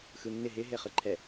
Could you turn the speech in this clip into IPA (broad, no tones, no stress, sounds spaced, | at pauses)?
x ɯ nː ɪ ɦ ɪ ɦ e χ ɯ ǃʰ ɛ